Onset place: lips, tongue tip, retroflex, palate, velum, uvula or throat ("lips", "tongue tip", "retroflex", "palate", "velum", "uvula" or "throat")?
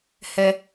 throat